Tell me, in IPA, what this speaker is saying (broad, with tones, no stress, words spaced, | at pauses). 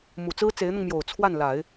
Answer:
mu˨˩ t͡sɹ̩˥ t͡se˧˥ɪ̯n̪ʊ˧ŋmjo˨˩ʊ̯ t͡sʰwa˥˩nla˨˩˦ɪ̯